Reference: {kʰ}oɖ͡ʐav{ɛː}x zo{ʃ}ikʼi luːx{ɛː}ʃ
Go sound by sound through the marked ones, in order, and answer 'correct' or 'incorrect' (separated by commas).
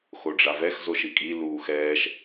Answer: incorrect, incorrect, correct, correct